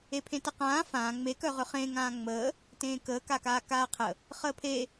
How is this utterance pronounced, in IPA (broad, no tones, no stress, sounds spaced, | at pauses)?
e pʰ ẽ t ə q ãː f ãː ŋ͡m e k œ ʁ ʏ χ ẽ ŋ ãː ŋ͡m əː | t ẽː k əː k a k aː k aː qʰ ə | χ əː pʰ e